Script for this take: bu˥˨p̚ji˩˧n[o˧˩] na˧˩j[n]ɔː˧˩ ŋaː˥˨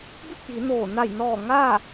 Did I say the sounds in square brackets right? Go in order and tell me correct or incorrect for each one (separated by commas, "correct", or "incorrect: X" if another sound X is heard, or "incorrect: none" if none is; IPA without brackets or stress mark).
incorrect: oː˧˩, correct